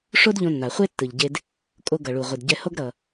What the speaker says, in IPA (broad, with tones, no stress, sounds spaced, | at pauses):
ʂ o˥ d ʎ õ˧ nː a˩ χʷ e˥ tː ɯ˩ ʎ ɟ e˧ d | kʼ o˧ ɡ ʌ˩ ɭ u˩ ʁʷ i˩ d ɟ ɛ˧ h o˥ ɡ ɾ ʌ˩